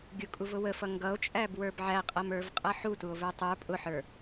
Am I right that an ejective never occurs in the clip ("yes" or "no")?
no